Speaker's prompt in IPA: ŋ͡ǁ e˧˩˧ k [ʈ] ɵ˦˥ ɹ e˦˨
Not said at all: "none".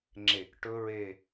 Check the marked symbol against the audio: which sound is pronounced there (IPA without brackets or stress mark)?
ʈ